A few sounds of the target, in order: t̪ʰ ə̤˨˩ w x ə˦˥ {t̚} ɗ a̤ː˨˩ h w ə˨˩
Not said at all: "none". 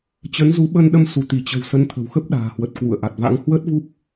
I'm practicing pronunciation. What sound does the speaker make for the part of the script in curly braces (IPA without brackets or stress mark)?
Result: p̚